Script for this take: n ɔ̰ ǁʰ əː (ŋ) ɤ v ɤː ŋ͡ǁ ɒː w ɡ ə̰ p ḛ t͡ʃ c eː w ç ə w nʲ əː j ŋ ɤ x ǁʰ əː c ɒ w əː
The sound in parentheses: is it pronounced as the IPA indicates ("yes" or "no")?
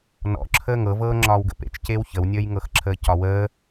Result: yes